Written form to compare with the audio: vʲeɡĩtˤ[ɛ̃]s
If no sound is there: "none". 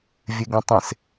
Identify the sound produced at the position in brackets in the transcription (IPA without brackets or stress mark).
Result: ẽ